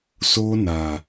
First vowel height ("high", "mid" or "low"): mid